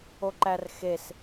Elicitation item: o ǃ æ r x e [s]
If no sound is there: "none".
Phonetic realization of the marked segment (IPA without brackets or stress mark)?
s